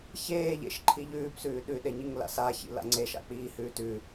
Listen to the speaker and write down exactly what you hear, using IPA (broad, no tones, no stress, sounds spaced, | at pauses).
ç eː ʎ ḛ ʃ ǃʰ i ʎ ʉː p s ʉː ɗ ʉ ɗ e ɲ i ŋ l a̰ s a ç ḭ l a̰ ŋ͡ǀ e ʃ a̰ k͡p iː h ʉː t ʉ